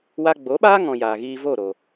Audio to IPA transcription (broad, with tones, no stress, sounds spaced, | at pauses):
w a˧ ɡ͡b o˨˦ ɓ aː˦ ŋ ɔ̃˨ j aː˨ ɣ iː˧ v o˦˨ ɾ o˨